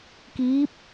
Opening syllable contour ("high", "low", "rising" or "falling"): rising